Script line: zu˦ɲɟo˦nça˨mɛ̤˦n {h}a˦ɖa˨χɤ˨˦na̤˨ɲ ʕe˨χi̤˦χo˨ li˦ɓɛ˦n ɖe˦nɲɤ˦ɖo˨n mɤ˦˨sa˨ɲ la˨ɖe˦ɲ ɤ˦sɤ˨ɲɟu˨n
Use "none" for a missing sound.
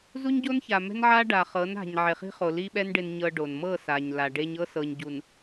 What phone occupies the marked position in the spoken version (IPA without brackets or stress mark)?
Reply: ʕ